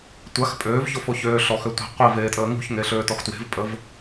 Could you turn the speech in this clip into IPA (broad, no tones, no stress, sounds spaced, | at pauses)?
tʷ a x pʼ øː v ç o f o ç øː ɬ ɔ x ø tʷ i̤ qʷ i v eː tʼ əː ŋ ṳ ç ŋ e ɬ øː t ɔ x t w e̤ v pʼ ə v